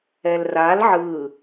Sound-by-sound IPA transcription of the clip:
ɛ l r a l ʕ ɯ

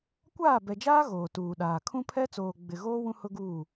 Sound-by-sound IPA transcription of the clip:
kʷ aː˦˨ b ɛ˨ d͡ʒ aː˦ ɣ oː˨ t uː˨ ɗ aː˨ kʰ ũ˦ pʰ ɛ˦ t͡s oː˨ ɡ͡b ɪ˨ ɣ oː˦ w ũ˦ h ʊ˦ ɡ uː˦˨

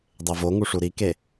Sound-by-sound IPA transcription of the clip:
dˤ e v o ŋ u ʂ u ɾ i k e

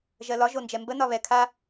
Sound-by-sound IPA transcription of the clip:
ʒ ɜ l ɒ ʒ o n d͡ʒ ɛ m b ə n ɒ β ɛ kʰ a

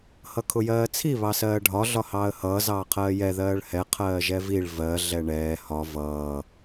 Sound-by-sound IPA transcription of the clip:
h ʌ kʰ ʊ j ɜː t͡sʰ i β ɑ s ɜː ɖʱ ɒ ɮ ɒ h ɑː ə̯ h ʌː z ɑː qʰ ɜː j ɛ ð ɜː ɭ h ɛ qʰ ɜː ʒ ɛ v i ɭ v ɜ ɮ ɛ ɳ ɛː h ɒ v ʌː

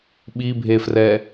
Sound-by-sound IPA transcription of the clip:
ɓ i bʱ e f r ɛ

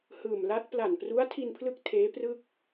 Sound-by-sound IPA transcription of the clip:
h ɯː˨˩ m l a˦˥ t̚ p l a˨˩ n p r u˦˥ a̯ tʰ i˧ n pʰ l ɯ˦˥ k̚ tʰ eː˦˥ p r ɯ˥˩ k̚

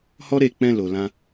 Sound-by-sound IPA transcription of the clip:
h ɔ˦ ɾ e˦˨ k͡p ɛ̃˧ l o˨ l ã˧

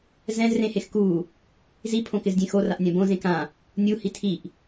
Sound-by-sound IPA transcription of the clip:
z ɛ̃ z r ẽ h e x k u | z i pʰ õ k ɪ z dʲ ẽ x o r a ʔ nʲ ã b õ z ẽ k ã | nʲ u h i tʰ i ʔ

